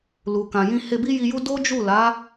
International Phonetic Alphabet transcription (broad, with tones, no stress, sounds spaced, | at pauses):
l u˨ k ã˨ j ĩ˧ h e˧ b i˦ j i˧ j u˦ d o˦ d͡ʒ u˦˨ l a˨˦